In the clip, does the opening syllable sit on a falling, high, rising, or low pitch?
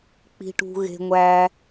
low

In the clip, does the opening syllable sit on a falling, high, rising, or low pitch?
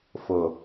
low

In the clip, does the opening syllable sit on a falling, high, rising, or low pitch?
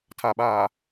low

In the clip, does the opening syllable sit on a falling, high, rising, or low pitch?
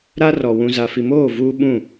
high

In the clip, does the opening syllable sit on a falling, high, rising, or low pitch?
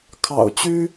low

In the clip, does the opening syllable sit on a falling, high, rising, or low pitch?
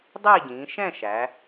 falling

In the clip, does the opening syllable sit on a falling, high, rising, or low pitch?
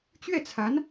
falling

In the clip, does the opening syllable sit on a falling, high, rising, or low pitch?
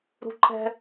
high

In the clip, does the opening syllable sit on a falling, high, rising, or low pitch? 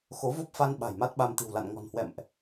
rising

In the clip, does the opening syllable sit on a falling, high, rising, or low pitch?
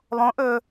rising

